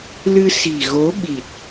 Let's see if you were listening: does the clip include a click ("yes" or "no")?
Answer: no